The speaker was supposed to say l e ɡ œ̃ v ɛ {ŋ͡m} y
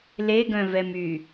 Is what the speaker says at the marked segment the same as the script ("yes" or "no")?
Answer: no